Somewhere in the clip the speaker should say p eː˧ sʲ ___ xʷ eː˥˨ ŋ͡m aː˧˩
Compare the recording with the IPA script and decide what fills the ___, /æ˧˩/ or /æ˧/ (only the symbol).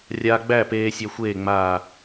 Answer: æ˧